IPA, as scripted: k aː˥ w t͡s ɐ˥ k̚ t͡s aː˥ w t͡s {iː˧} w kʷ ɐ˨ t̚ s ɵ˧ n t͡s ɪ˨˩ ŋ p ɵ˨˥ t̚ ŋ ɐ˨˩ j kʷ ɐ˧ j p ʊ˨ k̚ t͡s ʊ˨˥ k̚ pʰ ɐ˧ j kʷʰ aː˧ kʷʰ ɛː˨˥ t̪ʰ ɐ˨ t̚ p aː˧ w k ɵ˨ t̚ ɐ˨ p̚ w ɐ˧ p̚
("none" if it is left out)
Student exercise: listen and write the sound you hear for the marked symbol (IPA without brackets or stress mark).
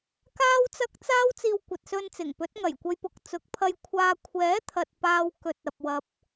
iː˧